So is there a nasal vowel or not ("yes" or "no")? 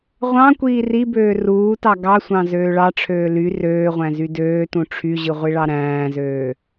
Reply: yes